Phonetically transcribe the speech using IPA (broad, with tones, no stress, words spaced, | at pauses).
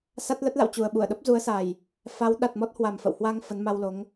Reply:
sa˦˥t̚ lə˦˥t̚la̰˧˨w t͡ɕu˨˩ə̯ɓu˧˩ə̯ɗə˦˥p̚ zu˨˦ə̯sa˨˩j | fa˨˦w ɗa˨˩t̚mɔ˦˥t̚hwa˨˩m fə̰˧˨whwa˧ŋ fə˨˦nma˧wlo˨˦ŋ